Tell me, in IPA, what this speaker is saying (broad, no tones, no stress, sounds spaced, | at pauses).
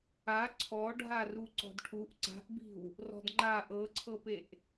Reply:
a ǀʰ ɔ ɖʱ a r u ǀ ɔ̤ d ʈʰ u ʔ ǀ a̤ ʔ b i̤ w | r ɔ̤ d ŋ͡ǃ a ʔ ɤ ǀʰ ɤ p e ʔ